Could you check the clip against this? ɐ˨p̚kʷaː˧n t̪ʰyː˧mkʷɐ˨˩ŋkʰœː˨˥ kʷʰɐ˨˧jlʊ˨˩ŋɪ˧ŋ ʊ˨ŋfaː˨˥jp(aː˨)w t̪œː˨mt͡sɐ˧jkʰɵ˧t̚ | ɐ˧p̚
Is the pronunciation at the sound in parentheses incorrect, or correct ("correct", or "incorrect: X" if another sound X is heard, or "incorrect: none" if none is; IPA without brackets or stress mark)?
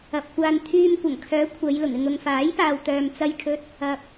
correct